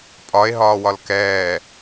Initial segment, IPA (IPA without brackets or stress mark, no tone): pʼ